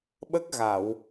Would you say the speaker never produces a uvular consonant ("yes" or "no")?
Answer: yes